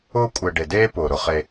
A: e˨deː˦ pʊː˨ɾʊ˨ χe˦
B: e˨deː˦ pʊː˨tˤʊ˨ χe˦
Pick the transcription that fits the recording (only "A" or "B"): A